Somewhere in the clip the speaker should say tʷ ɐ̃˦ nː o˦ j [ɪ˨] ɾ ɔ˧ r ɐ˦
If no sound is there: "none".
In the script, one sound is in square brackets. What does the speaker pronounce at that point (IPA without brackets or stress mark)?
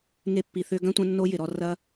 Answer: ɪ˨